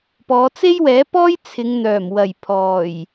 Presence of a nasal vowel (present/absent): absent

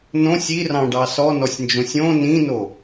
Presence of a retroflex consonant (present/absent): present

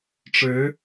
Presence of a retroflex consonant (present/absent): present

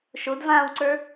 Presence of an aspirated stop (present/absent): absent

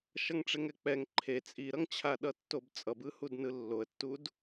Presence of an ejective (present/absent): present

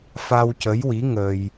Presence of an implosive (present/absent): absent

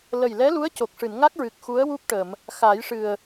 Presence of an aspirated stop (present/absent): absent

